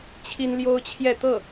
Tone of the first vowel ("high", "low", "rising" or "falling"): high